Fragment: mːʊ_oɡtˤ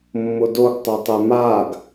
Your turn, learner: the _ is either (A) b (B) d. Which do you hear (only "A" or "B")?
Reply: B